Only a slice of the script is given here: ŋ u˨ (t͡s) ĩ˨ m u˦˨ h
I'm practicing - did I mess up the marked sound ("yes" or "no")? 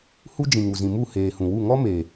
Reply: yes